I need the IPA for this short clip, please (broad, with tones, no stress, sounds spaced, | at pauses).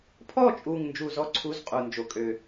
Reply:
pʰ ɔ˦˨ t͡ʃʼ u˨˩ ŋ n d͡ʒ u˦˨ z ɔ˥ ǀʰ u˧˥˧ z qʼ u˨˩ n d͡ʒ o˨˦ kʼ ø˨˩